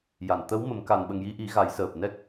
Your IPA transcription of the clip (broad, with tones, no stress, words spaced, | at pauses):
ja˨˩˨nt̪ə˧˥wmə˨˩˦m ka˨˩nɓə˨˩ŋji˧ʔi˨˩˦ ɣa˨˩˦jsəː˨˩p̚ nɛ˦˥k̚